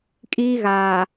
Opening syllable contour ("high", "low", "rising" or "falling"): high